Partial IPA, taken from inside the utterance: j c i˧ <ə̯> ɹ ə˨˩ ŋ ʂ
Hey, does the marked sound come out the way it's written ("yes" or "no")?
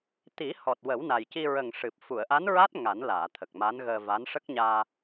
no